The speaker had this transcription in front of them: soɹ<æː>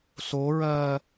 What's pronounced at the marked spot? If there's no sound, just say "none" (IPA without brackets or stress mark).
ɜː